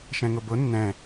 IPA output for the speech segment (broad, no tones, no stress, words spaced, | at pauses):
ʃɛ̃ŋʊbʊ nːɛ̃